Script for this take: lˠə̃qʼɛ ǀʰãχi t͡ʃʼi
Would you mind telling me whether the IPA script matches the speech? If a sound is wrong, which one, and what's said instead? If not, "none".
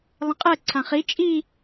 none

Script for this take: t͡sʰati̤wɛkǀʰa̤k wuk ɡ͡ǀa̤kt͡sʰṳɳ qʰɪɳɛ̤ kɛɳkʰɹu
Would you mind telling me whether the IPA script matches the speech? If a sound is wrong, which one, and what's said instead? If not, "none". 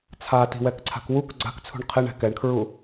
none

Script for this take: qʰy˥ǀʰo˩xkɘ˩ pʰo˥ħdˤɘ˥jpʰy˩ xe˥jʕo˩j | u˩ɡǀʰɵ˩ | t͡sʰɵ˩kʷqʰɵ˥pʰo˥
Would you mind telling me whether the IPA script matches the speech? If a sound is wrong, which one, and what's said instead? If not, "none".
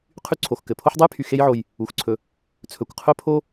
ɡ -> x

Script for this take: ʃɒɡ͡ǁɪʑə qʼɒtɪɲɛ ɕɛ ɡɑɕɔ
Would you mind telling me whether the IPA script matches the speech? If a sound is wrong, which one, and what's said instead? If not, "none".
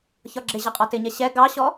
ʃ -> ç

